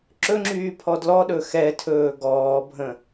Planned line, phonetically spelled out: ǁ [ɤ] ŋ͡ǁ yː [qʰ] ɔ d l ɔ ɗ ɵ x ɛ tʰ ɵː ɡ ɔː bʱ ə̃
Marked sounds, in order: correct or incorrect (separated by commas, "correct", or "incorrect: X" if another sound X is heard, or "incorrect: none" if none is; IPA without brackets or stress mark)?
incorrect: ɵ, incorrect: pʰ